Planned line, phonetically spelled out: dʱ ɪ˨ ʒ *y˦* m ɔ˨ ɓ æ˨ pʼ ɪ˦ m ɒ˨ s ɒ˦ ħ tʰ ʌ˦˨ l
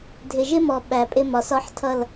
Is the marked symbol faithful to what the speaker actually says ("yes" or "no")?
no